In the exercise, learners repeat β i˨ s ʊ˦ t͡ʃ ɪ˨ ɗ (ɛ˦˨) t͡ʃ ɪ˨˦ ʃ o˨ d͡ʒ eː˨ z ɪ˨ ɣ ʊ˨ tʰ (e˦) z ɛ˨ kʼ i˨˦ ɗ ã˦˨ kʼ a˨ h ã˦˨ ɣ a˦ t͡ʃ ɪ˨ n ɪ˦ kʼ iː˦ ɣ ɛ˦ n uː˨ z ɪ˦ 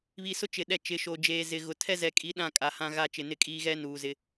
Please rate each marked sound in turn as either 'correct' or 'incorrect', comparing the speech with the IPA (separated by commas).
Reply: correct, incorrect